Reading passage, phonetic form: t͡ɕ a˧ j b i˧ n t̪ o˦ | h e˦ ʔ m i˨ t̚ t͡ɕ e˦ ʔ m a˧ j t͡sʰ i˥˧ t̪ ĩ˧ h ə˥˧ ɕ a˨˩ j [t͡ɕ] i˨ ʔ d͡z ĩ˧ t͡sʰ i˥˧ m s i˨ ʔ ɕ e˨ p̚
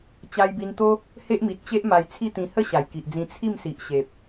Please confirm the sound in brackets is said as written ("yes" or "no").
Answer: no